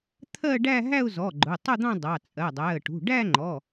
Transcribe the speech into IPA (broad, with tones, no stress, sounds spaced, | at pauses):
t̪ʰ ɜ˥˧ ɖ æ˥˧ ɦ æ˥˧ ʊ̯ z ɔ˩˧˩ ɡ͡ǃ ʊ˩˧˩ tˤ ʊ˥˧ d̪ ɑ̃˥˧ dˤ ɑ˩˧˩ t͡sʼ ɜ˩˧˩ dˤ æ˩˧˩ ə̯ ʈ ṳ˩˧˩ ɖ æ˥˧ ŋ͡ǃ ɔ˩˧˩